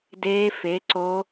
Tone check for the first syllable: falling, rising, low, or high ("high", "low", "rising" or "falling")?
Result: rising